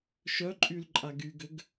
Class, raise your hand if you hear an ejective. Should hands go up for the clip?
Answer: yes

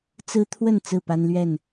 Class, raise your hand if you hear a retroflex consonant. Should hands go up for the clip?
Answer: no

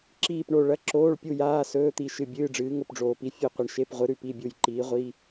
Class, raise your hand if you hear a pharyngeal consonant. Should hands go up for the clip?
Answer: no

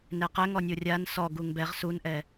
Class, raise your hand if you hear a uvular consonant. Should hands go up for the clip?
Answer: yes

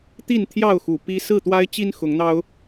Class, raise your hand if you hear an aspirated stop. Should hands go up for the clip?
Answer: yes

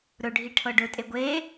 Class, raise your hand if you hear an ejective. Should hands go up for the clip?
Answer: yes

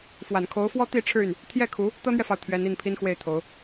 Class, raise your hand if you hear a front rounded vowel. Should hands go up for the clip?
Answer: yes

